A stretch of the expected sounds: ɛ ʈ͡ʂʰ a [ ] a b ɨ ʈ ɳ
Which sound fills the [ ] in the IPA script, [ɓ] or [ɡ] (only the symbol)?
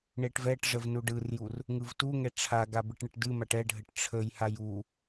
ɡ